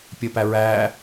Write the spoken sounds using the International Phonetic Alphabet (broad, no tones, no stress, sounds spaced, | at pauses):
pʲ əː p æ ɹ æː